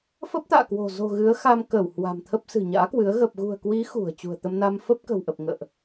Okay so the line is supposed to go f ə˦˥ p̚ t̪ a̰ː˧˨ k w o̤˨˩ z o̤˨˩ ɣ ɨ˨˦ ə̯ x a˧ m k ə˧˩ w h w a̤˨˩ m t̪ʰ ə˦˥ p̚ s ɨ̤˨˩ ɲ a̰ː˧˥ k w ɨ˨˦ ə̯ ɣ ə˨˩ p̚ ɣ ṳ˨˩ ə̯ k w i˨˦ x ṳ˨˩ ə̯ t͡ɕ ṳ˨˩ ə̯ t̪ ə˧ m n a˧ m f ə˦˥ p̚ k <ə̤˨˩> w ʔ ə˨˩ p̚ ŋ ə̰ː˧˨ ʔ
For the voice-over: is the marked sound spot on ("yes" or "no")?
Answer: yes